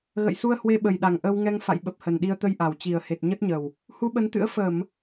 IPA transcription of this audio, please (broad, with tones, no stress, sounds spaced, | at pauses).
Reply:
ɣ ə̰˧˨ j s u˧ ə̯ h w e˧ ɓ ə˨˩ j ɗ a˨˩ ŋ ʔ ə˧ w ŋ ɛ˧ ŋ f a̰˧˨ j ɓ ə˨˩ p̚ h ə˨˩ n ɗ i˧ ə̯ t̪ ə˧ j ʔ a˨˩ w t͡ɕ i˨˩ ə̯ h e˨˩ t̚ ɲ ə˦˥ t̚ ɲ ə˨˩ w | h u˧ ɓ ə˨˦ n t̪ ɨ̰˧˥ ə̯ f ə˧˩˨ m